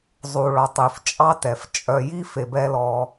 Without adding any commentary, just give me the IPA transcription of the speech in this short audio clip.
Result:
zˤ u˨ ɭ ɔ˨ tˤ ʉ˨ f t͡ʃʼ ɑ˦ t ɛ˨ f t͡ʃʼ œ˧ j i˦ f e˨ b ɛ˧ l ɔ˧

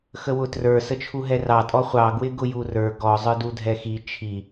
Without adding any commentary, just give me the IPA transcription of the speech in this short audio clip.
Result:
x ə w ʊ t r ə˞ s ə t͡ʃʰ u ɦ ɛ r ɑ tʼ ɔ χʷ ɑ ɡ w ɪ ɡ ʊ j u r ə˞ ɡ ɔ zˤ ə˞ d u dʱ ɛ x i t͡ʃʰ i

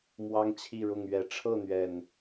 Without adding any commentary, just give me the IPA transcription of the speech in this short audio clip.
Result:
m w ɑ˦ ŋ t͡ɕʰ i˥˨ ɻ ʊ˥˨ ŋ ɥ ɛ˨˦ ʈ͡ʂʰ ɤ˥˨ n̪ ɥ ɛ˨˩ n

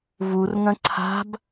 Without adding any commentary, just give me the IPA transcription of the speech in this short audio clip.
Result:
v u r ŋ ɐ̃ ǀʰ a̤ b

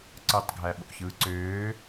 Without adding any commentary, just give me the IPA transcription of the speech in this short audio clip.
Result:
ǀ ɯ tˤ ɡʱ æ ɓ o̰ ç ɯː ǀ øː

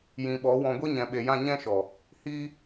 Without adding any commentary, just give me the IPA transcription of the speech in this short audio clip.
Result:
j ĩ˨ ɓ ɔ˨˦ w ɔ̃˧ ɡʷ i˦ ɲ ɛ̃˨ ɓ e˨ j ã˦˨ ɲ ɛ̃˦ ʃ ɔ˨ | h iː˧

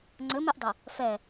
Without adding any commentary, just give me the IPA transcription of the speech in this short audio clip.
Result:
ŋ͡ǀ ɘ m e ʔ dˤ ɐ | f ɛ

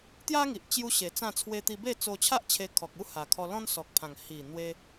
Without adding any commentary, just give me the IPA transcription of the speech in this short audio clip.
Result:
t̪ j a˦ ŋ i˨ ʔ t͡ɕ j u˦ ɕ e˨˩ t͡s ã˥˧ t͡sʰ w e˧ t̪ i˧ b e˥˧ t͡s o˧ t͡ɕʰ a˦ ʔ t͡ɕʰ e˧ kʰ ɔ˨ k̚ u˦ h a˨˩ kʰ ɔ˧ l ɔ̃˦ n s ɔ˨ k̚ pʰ ã˨˩ ŋ h i˨˩ n̪ w e˧

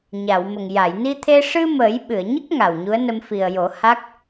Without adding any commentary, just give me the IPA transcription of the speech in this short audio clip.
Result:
ɲ a˨˩˨ w m ə˨˩ ŋ j a˨˩˨ j n i˧ t̪ʰ e˧ ʂ ɨ˧ m əː˨˩˦ j ɓ ɨ˨˩˨ ə̯ ɲ ə˦˥ k̚ ŋ a˨˩ w ɲ u˧˥ ə̯ n ə˧ m f i˨˩ ə̯ j o˨˩˦ h a˦˥ k̚

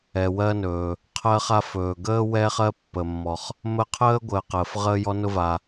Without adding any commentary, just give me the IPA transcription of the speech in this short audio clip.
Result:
ɛ˩ w ɜ˦ n ɵː˩ | qʰ ɜ˦ χ a˦ f ɵː˩ ɡ əː˥ w ɛː˦ χ ɜ˦ pː ə˩ mː ɔ˩ χ | m ə˦ qʰ əː˥ ɡʷ əː˨ q əː˩ f ʁ əː˦ j ɔ˦ n ʊ˦ v a˩

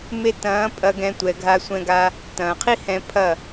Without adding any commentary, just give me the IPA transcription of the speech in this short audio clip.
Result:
m e˧ t ɐ̃ː˨˦ pʼ ɐ˧ ɡ ɛ̃˧ tʷ ɛ˨ ɡʱ a˧ sʷ ɛ̃˧ ɡ a˧ | t ɐ̃ː˨ qʰ i˦ h ɛ̃˧ pʰ ɐ˦˨

